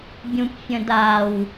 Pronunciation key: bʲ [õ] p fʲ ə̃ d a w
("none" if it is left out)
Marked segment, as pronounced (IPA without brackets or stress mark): ũ